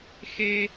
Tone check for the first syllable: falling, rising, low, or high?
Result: high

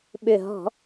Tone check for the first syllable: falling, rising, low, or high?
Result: low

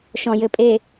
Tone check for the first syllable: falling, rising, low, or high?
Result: low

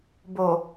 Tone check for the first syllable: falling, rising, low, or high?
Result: low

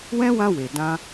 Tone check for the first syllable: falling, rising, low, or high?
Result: high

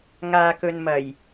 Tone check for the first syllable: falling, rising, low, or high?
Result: low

